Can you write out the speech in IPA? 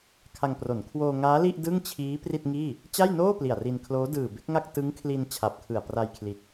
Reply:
kʰa˧ŋpro˩˦n kʰwoː˧ŋaː˦˥li˥˩ʔ dɯ˥˩ŋt͡ɕʰiː˦˥ pri˥˩t̚ŋiː˥˩ | t͡ɕa˥˩jnoː˥˩ pli˨˩a̯ri˧nkʰloː˦˥ dɯː˨˩be˦˥k̚ŋa˥˩k̚ tɯ˦˥ŋkʰli˧n t͡ɕʰa˨˩p̚kʰɯ˨˩a̯ pra˧jkʰli˨˩t̚

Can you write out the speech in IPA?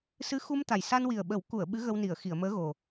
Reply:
sɨ˧˥xu˧mt̪a˨˩j sa˧nwi˨˩ə̯ɓə˨˩˦wku˨˩˨ə̯ ɓɨ˧˥ɣə˧w ni˨˩˨ə̯xi˨˩˨ə̯məː˧˥ ɣo˨˩

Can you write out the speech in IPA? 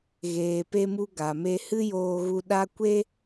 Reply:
ɣeː˧pe˦mu˦ ɡa˨me˧ hɨ˦joː˧ɣu˧ ɗa˦ kʷe˦

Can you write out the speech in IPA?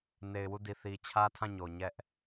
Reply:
ne˨ɪ̯wu˦˨di˨ θi˨ t͡ɕʰä˦tʰã˦˨ɲo˨ ɲɛ˦ʔ

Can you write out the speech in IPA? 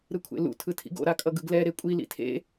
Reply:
ɾɯkʷʰḛlṵ tʰɯtʰḭɡo̰ ɾakʼʌɡɯɡlɛ ɾekʷʼi lḭtʰḛ

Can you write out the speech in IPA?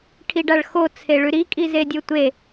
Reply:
ʈʰiɖaɭxo t͡sʰeɭʉɾi kʼizedʲotʷe

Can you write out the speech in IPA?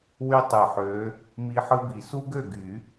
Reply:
wy˦tˤɯ˨˩ħø˨˦ | mi˦ ħɯ˦bi˨˩˦ su˦ɡø˥˩ɡy˨˩˦

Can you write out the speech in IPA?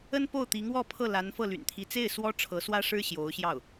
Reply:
ə˥npo˥˩ʊ̯t̪i˧˥ŋwɔ˥˧ pʰɤ˥˩la˧˥n fɤ˥˩ly̰˨˩nt̪ʰi˧˥ t͡se˥˩ɪ̯ swɔ˥ ʈ͡ʂʰɤ˧˥swä˥ʂɻ̩˥ ɕjo˧˥ʊ̯ɕjɑ˥˩ʊ̯

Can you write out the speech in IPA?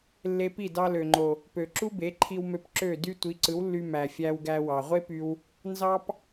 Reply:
lːe˧pi˥˩ dɑ˧lø˩ŋ͡ǃo˩ | pø˩ǁu˥ be˩˥ǃʰi˧wmø˧p ǁø˥˩dy˥ tʷi˩˥ǀɯ˩˥wlːy˧ mæ˩fʲæ˧wɡæ˧ wɑ˩ʁʷe˥py˧w | nzɑ˥p

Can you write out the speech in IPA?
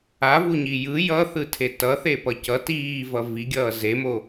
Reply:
avuɲi jɯ jʌθɯtʰe tʌθepʌ cʌ tiːvʌ viɡʲʌː zemo

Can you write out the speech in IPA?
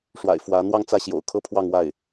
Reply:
ʂwa̰˨˩ɪ̯fwä˧˥ n̪wɑ˥˧ŋt͡sä˥˩ɕjo̰˨˩ʊ̯ kʰɤ˥pʰwɑ˥˧ŋwa˥˩ɪ̯

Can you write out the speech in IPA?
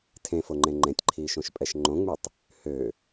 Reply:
tʰẽfoŋ͡ǃẽ ŋ͡ǃẽtʲǃʰiːʃõʃpʼɛʃ ŋ͡ǃõŋ͡mytˤ | hø

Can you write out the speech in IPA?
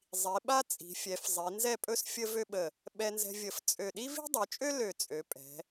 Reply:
zˤi˩˧ɓa˥ t͡sʼi̤˩˧fʲɛ˩˧fzˤi˩˧ nzɛ˥˧pʼɵ˥s fʲə˥vø˥ɓə˧˩ | ɓɛ˧nzɛ̤˧vʲə˧˩f t͡sʼø˧˩ ɗi˥vi̤˥dˤø˩˧t͡ʃʼø˥ lø˧˩t͡sʼø˩˧pʼɛ̤˩˧

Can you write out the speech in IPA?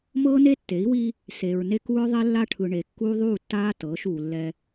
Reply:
mɤː˦ ne˦tːe˨˦i̯wi˦ | se˨ɹne˦k u˦ɹðˤe˦ lːa˦ʈʰɯ˨ɳe˨ kːuː˦ðˤuː˦˨tːaː˦ tɤː˨˦ʃuː˨lːɛ˦

